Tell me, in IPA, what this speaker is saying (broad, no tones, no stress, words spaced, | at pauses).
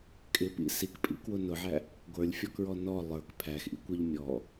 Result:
kʼɪpḭ sikpʼḭkwʊ nʊʕæ | ɡʷə˞lʲfʲɔkɹɔ nɔ lˠə˞k pʰæxʔḭkʷə˞ʎ mʲɔ